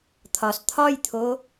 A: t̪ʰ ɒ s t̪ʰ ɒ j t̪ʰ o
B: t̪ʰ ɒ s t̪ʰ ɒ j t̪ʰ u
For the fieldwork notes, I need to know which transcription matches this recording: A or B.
A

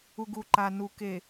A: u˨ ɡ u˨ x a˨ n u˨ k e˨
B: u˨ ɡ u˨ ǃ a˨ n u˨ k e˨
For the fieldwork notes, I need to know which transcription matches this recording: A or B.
B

